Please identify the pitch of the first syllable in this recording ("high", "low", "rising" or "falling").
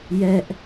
high